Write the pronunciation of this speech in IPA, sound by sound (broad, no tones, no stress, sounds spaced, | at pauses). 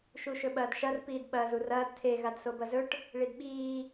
ʃ u ʃ ɵ ɓ ɐː d ʃ ɐ r p iː d ɓ ɐː z u r ɐː d tʰ e ɣ a d s o b ɐ z ɵ ʈ | ɭ i d ɓ iː